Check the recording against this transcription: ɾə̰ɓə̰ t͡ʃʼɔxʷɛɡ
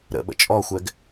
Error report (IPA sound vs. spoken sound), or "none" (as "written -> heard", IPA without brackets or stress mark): none